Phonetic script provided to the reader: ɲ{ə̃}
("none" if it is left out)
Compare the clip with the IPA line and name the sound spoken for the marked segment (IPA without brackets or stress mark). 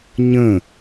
ə̃